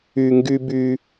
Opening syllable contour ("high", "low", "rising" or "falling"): low